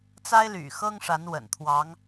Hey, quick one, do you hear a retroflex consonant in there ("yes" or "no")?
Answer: yes